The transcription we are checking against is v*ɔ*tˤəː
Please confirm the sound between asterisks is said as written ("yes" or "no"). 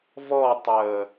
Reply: yes